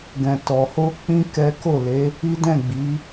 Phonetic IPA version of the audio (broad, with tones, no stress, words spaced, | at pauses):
ɡɛ̃˨tɔ˨ho˧ k͡pĩ˦ kɛ˦ ko˦˨ le˨˦ | i˦dɛ̃˦˨ɡ͡bi˨˦